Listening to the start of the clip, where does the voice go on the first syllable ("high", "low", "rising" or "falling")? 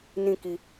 high